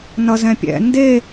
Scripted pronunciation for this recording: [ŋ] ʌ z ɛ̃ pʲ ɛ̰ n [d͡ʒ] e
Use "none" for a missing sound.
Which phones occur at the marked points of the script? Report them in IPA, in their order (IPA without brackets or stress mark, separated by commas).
n, d